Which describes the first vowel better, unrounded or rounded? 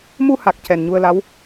rounded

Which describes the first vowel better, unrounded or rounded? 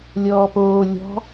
rounded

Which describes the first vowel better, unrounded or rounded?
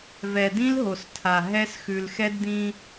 unrounded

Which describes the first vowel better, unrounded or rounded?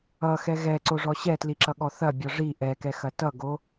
unrounded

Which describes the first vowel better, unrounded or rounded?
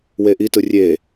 unrounded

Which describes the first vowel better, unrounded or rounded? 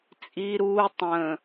unrounded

